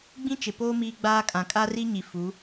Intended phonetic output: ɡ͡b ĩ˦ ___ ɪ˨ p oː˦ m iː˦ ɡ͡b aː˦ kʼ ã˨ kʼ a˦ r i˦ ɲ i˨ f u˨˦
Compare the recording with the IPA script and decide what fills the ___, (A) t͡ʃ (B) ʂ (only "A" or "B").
A